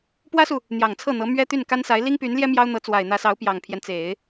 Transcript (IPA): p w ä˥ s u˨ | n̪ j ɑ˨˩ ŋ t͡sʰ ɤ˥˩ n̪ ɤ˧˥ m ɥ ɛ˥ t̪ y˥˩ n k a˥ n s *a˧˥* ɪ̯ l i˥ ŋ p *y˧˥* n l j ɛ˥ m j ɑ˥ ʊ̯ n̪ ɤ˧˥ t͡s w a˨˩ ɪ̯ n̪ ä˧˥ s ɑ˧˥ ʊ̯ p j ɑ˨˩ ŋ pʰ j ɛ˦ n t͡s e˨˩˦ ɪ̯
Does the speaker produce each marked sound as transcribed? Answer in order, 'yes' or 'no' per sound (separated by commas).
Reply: yes, yes